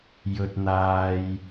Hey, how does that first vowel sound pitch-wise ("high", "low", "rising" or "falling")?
low